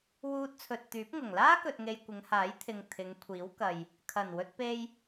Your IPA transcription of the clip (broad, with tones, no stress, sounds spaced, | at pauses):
w uː˧ t̚ t͡sʰ ɵ˨ t̚ t̪ yː˨˥ p̚ ŋ ʊ˨˩ ŋ l aː˥ k ɵ˨ t̚ ŋ e˨ j kʷ ɪ˨˧ ŋ h aː˨˥ j t̪ʰ ɪ˨ ŋ t̪ʰ ɪ˨˧ ŋ kʷʰ iː˨˥ w k ɐ˨ j | kʰ ɐ˨˩ n w ɵ˧ t̚ p e˧ j